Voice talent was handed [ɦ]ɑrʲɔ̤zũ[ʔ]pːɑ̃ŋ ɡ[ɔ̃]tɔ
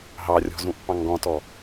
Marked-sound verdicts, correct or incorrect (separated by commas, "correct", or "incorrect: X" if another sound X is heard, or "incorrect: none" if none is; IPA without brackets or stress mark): correct, correct, correct